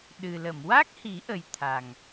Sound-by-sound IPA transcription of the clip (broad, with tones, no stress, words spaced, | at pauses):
ɗɨ˨˩ lə˨˩˨mwa˦˥k̚hi˨˩˦ʔə˨˩j t̪ʰa˨˩ŋ